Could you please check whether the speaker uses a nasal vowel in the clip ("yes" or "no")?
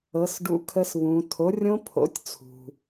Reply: yes